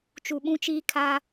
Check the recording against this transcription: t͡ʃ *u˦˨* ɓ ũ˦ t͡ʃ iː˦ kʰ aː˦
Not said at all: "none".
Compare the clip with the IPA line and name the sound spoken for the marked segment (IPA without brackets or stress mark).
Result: u˨